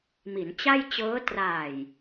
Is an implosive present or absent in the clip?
absent